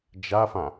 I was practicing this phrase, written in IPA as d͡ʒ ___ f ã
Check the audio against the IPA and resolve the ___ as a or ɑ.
a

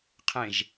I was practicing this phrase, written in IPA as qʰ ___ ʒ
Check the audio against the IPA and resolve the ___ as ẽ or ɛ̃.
ẽ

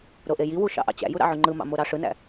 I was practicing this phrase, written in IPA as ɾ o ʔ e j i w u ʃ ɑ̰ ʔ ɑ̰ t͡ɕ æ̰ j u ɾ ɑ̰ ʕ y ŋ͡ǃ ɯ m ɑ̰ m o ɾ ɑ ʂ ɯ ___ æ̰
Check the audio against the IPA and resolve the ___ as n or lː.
n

